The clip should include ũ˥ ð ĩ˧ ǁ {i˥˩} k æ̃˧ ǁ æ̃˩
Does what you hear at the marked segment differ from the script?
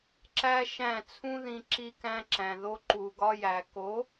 yes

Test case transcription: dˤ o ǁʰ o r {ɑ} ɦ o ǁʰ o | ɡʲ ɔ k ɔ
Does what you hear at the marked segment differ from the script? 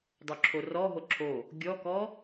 yes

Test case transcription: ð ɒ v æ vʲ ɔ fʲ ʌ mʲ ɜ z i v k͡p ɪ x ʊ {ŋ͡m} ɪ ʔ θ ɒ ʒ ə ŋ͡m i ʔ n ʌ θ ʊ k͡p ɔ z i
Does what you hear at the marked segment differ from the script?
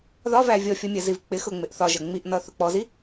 no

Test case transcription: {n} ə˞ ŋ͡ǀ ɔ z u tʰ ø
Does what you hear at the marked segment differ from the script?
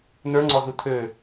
no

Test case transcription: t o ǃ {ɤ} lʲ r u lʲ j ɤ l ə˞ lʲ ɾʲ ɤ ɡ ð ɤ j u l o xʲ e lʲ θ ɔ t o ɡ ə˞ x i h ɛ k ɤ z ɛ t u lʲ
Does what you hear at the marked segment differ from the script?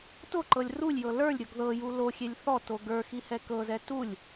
no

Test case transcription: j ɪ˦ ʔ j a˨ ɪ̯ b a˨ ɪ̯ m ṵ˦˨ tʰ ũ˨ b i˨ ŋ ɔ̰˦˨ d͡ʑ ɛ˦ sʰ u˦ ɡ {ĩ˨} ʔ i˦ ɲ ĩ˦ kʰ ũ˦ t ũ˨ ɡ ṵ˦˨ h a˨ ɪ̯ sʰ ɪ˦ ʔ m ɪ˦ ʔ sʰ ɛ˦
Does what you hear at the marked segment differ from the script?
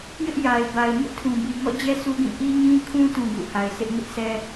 yes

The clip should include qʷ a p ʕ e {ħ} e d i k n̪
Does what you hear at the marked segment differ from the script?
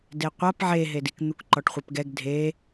yes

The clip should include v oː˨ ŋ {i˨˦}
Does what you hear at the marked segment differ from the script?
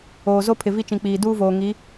no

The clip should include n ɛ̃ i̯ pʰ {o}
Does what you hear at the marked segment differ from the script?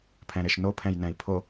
no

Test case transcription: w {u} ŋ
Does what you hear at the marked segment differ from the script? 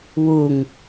no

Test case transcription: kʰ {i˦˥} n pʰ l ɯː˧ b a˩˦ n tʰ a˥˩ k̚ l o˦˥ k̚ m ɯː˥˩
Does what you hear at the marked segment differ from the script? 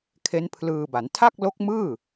yes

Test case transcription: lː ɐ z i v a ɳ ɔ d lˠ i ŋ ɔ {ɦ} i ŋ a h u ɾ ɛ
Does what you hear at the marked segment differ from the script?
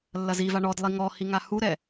yes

